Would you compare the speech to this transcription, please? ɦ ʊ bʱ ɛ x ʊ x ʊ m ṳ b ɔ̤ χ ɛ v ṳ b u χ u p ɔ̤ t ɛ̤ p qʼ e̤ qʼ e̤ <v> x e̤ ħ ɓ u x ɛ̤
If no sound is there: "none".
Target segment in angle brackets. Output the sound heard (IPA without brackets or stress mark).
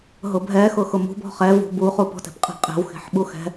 w